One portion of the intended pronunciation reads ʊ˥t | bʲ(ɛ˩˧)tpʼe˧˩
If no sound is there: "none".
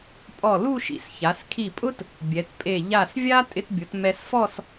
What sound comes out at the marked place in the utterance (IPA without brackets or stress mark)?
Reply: ɛ˩˧